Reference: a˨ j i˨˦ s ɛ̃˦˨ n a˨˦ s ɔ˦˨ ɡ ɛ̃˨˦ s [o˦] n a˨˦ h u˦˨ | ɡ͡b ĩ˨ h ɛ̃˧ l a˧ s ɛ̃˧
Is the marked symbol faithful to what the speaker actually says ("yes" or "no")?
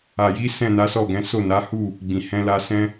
no